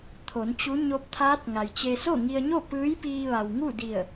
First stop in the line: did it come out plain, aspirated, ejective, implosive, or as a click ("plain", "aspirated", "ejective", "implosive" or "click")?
aspirated